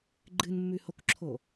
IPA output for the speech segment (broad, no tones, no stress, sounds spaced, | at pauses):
ɡ͡ǃ ɨ n mː ʉ h o k ǁʰ o